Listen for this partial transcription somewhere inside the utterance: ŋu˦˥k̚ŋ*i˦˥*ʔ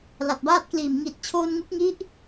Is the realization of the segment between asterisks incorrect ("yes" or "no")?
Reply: no